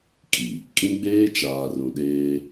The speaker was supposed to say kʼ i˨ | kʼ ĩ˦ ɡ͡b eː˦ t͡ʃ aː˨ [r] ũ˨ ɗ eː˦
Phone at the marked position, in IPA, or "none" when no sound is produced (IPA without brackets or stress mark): r